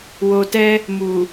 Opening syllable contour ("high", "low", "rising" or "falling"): low